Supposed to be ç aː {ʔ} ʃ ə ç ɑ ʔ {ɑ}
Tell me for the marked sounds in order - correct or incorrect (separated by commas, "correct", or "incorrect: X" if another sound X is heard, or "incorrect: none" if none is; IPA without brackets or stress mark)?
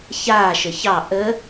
incorrect: none, incorrect: ə